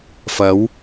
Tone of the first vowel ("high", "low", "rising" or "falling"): rising